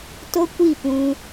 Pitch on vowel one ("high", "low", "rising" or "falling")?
high